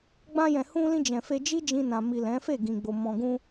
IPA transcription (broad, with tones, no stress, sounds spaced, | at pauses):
ɡ͡b ã˧ j ɛ̃˨ h ũ˧ l ĩ˧ d͡ʒ ɛ̃˨ f e˧ d͡ʒ i˦ d͡ʒ ĩ˧ n ã˨ m i˨ l ɛ̃˨˦ f e˦˨ ɡ ĩ˨ ɡ͡b o˨ m ɔ̃˨ ɡ ũ˧